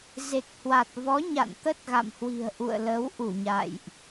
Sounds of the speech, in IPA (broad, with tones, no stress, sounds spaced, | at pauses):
z e˨˩ k̚ h w a˨˩ t̚ v ɔ˨˦ ɲ a̰˧˨ n t̪ ə˦˥ t̚ ɣ a̰˧˨ m h w i̤˨˩ ə̯ ʔ ṵ˧˨ ə̯ l ə˨˦ w ʔ u˧˩ ɲ a̰˧˨ j ʔ